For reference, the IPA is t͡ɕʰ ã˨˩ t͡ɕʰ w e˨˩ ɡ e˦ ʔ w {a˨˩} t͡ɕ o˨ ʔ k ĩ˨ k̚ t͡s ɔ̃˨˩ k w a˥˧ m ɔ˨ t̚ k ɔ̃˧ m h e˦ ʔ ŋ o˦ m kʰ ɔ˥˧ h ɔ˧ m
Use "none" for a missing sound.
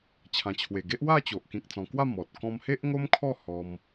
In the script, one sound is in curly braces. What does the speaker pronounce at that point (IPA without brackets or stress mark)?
a˥˧